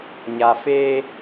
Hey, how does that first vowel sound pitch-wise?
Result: low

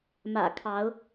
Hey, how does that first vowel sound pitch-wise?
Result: low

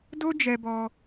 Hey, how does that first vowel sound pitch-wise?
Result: high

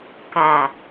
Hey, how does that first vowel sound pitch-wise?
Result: low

